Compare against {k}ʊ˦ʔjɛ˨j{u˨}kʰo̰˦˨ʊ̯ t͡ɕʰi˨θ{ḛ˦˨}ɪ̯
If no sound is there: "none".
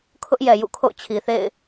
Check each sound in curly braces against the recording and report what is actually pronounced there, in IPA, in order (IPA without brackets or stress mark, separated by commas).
kʰ, ṵ˦˨, ḛ˦˨